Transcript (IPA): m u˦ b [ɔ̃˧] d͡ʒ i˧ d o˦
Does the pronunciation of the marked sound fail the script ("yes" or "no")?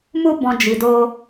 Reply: no